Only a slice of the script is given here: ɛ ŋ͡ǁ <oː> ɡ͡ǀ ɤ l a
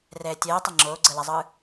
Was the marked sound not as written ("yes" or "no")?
no